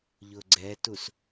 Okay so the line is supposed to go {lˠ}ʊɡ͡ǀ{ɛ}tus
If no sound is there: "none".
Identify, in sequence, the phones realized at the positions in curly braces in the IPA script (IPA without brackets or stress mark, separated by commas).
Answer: ʎ, ɛ